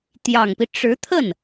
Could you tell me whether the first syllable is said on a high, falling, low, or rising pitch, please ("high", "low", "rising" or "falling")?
low